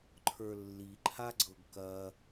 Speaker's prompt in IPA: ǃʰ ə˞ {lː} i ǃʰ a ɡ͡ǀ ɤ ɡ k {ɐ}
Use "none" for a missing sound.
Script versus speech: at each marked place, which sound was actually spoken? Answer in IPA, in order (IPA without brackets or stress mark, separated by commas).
lː, ɐ